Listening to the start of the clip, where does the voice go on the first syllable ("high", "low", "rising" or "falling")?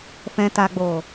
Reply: low